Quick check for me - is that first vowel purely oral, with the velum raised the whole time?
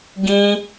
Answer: no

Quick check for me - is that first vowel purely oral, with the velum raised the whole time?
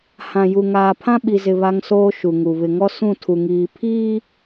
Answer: no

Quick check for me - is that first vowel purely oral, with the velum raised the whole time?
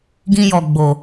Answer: no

